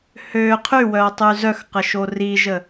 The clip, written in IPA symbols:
h ø qʰ y w œ tˤ y z œ x q ə ʃ o r i ʒ ə

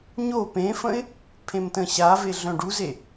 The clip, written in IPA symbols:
ɲ o p ẽ f ə̃ ɪ̯ | pʰ ẽ m t ə̃ ɕ a v e ɮ œ̃ ɖ u z e

